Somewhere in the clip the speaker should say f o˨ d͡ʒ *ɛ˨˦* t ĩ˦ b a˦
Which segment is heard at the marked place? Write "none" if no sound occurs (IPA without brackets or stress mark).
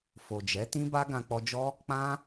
ɛ˨˦